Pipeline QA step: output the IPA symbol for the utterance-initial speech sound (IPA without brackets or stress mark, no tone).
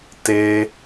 t